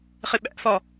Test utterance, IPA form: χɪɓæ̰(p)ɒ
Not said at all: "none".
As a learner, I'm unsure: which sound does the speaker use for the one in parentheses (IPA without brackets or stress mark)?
f